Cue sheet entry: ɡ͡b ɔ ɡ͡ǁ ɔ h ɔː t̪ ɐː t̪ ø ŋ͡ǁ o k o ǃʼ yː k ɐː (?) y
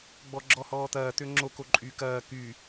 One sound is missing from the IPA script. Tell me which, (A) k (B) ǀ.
A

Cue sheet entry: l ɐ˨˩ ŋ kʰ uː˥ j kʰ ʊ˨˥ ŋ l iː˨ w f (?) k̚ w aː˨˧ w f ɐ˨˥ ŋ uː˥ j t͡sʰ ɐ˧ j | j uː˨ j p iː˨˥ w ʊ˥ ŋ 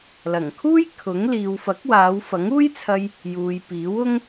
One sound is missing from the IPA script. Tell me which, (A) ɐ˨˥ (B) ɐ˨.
A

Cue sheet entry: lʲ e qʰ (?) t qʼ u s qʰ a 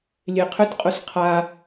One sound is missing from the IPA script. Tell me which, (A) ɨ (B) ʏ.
B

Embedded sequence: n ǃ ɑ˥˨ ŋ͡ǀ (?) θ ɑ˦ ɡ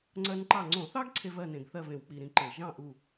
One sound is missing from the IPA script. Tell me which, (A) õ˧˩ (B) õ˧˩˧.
B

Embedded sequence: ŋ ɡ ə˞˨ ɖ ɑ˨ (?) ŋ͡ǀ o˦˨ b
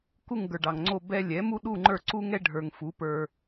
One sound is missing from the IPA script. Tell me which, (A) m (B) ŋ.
B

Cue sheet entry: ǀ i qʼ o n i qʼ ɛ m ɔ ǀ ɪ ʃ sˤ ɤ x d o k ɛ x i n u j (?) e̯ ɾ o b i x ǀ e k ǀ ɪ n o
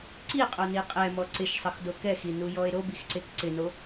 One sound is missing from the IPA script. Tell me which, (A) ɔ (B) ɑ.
A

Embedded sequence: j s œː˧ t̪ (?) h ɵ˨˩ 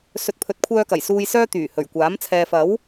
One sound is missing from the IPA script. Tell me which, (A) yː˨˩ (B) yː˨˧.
A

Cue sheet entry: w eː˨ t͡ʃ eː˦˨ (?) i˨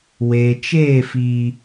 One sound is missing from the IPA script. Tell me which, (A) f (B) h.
A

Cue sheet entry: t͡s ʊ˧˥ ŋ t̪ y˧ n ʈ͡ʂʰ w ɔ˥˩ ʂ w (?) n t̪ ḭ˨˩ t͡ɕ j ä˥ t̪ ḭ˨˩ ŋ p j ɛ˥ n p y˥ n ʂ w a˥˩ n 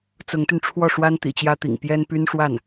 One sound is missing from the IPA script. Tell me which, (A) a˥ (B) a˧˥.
A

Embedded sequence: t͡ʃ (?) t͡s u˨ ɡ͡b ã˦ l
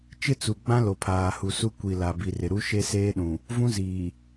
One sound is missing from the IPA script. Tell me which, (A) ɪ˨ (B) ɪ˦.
B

